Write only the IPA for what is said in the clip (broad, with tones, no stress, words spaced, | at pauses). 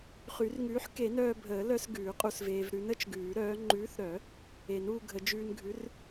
χy˨˩˦rŋʉː˨˥ħ ke˨˩˦nœː˧bʱəː˨˩˦lœ˧s ɡʉː˨˩˦qʼu˧sveː˧v ɾʉ˨˥nə˨˩˦t͡ʃɡʉː˨˩˦ɾœː˨˥ ŋ͡ǃʉː˨˥θɾœ˨˩˦ | e˨˩˦nuː˧ɡʱə˨˩˦ d͡ʒʉː˧nɡʱʉ˨˥r